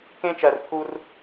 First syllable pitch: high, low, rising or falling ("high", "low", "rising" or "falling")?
high